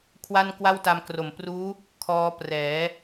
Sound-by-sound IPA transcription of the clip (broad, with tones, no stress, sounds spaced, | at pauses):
kʰ w a˥˩ n k w a˥˩ w t a˧ m k r o˨˩ m p r uː˦˥ | kʰ ɔː˦˥ p r ɛː˩˦